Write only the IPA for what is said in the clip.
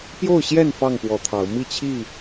pjo˥˨ʊ̯ɕjɛ˥˨n fɑ˥˨ŋpwɔ˨˦t̪ʰɑ˨˦ʊ̯ mi˥˨t͡ɕʰi˥˨

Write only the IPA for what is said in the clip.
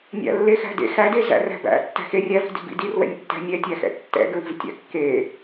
nʲæ̰lːexæ̤dḛ xæde zæ̰ræ̤bæ̰ tːæ̤xe rʲævi̤ di̤bḭdir wɛ̰nʲtːæ̤nʲɛ tʲæxɛ̰tːɛ̰ɡɹi̤v tʲæ̰kːe

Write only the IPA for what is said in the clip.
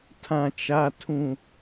tʰã˨t͡ʃa˨ tʰũ˨

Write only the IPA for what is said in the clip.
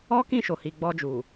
ɔ˦kĩ˦˨ʃo˨ hi˨ɡ͡bɔ˧d͡ʒu˨

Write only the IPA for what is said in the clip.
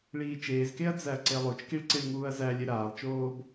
ɭiːt͡ʃeːzkeɐ̯ d͡zæɐ̯ǀelˠot͡ʃkiɭ ǀiɭŋuːɐ̯zælʲe ɾaːlˠt͡ʃoːb

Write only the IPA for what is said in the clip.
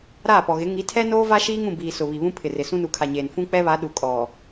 ɾaː˦˨pɔ˨ɣɪ˨˦ ŋi˨˦tʰɛ˦noː˦ va˦ʃiː˦ŋũ˨biː˨ sʊ˨βi˨βũ˦ pʰɪ˨rɪ˨ sũ˦nu˨˦kʰa˨ɲeː˨n fũ˦k͡pɛ˦βa˨˦ ɗu˨ kʼɔ˨

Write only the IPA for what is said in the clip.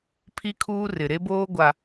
pʰi˦kʰuː˦rɪ˨ ɾe˦boː˦ɡʷa˨

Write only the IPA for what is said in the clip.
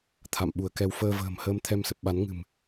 t̪ʰa̰˧˨mɓu˧˩ə̯kɛ˧w fəː˧və̤ː˨˩mhəː˧m t̪ʰɛ˧msə˨˩p̚ɓa˨˦n ŋɨ̤˨˩m

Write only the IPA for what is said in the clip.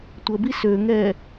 tʷəbi søŋɛ

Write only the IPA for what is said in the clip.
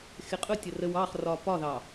xɪqʼʊ tʲərəw ɑχ rɒpɒðɑ

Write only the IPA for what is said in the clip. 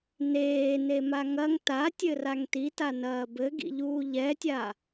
neːne maŋɐŋ tatʲɘ raŋtitanɐː bɘɡḭʎuː ʎɛtʲa

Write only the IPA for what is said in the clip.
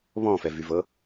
βɔ̃fɛvyvɤ

